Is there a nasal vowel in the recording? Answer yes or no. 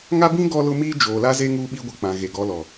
yes